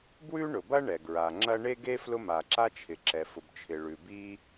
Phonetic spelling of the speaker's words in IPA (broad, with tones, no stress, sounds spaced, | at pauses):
b w ʉ˥ ɳ ʊ˩ b ɐ˥ ɳ ɛ˩ ɡ ɹ a˩ ŋ͡ǁ ɐ˥ ɳ e˥ ɡ e˥ f l ʊ˥ m a˩ ǁ a˥ t͡ʃʰ ɪ˩ ǁ ɛ˩ f ʊ˩ b t͡ʃʰ ɪ˩ ɭ ʉ˩ b i˥